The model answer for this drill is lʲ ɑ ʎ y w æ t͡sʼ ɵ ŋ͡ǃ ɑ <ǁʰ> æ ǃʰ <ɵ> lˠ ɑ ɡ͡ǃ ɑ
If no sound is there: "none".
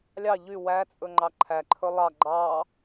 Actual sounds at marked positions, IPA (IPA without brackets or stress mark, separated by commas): ǃʰ, ɵ